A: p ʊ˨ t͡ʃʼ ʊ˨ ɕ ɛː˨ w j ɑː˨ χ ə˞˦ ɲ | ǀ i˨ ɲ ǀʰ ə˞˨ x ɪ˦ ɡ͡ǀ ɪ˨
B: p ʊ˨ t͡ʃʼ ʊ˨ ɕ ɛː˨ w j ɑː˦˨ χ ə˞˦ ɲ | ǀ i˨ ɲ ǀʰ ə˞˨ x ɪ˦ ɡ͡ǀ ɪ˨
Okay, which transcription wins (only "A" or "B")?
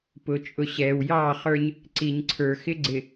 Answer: B